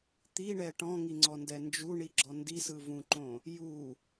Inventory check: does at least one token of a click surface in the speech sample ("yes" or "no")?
yes